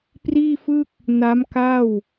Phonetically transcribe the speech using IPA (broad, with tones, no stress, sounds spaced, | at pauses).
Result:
p r iː˥˩ f ɯ˥˩ k̚ | n a˦˥ m k a˥˩ w